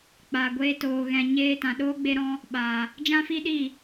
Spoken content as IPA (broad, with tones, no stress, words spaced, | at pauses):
k͡paː˨ɡʷeː˧toː˨ ɣɛ̃˨ɲeː˧tã˨ɗoː˦ ɡ͡be˦ɾɔ̃˦ | ɓaː˨ | d͡ʒã˦fi˦ɗiː˦˨